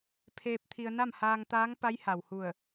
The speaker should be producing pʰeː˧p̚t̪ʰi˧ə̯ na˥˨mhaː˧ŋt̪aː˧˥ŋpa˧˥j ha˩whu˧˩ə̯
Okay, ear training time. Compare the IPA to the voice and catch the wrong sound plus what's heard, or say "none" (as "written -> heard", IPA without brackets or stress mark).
none